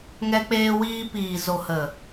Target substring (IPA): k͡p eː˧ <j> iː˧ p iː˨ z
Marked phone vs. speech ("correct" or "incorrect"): incorrect